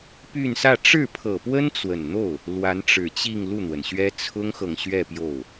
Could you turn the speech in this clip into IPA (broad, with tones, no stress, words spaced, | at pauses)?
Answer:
py˥˧n sä˥˧ ʈ͡ʂɻ̩˥˩pʰɤ˨˩pwə˥n t͡swə˨˩nn̪o˥˩ʊ̯ | lwa˧˥nʈ͡ʂɻ̩˨˩t͡ɕi˥˧ŋ lu˥˩n̪wə˩nɕɥɛ˥ t͡sʰʊ˥ŋxɤ˨ŋɕɥɛ˥˧ pjo˥˩ʊ̯